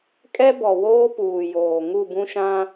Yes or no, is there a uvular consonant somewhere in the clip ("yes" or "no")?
no